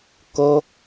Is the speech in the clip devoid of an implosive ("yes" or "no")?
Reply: yes